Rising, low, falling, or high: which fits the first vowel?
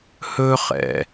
high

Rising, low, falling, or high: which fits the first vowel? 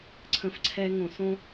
low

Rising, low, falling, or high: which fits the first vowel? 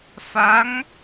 rising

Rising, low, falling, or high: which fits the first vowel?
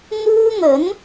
high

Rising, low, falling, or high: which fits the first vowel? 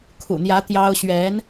low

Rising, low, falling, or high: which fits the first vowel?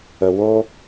low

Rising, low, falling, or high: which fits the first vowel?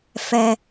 high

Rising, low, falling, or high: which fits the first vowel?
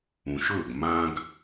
low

